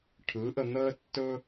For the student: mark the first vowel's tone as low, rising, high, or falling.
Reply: rising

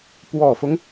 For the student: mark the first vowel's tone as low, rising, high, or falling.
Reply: low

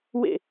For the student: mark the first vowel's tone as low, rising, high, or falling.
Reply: falling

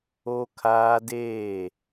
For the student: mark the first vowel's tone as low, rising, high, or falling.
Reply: high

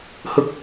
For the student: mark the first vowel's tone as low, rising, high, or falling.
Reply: high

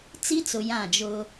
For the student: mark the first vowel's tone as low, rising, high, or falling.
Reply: high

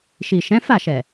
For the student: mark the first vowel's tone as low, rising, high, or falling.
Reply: low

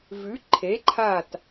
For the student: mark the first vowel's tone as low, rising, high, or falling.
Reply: rising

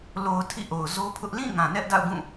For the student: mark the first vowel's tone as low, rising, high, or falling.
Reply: low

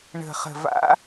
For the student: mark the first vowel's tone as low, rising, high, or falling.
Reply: low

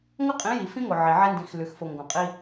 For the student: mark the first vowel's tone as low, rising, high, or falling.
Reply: high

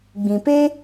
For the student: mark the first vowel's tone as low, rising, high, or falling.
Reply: low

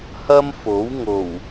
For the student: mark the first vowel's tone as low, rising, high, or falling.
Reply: high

